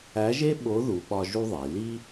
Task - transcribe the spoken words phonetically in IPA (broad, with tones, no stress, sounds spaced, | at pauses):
æ˧˥ ʒ e˥ ɓ o˧˥ ð u˧˥ ɓ ɒ˥ ʒ u˥ ðˤ i˩˧ l i˥